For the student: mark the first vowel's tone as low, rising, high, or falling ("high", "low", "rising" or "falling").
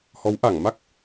rising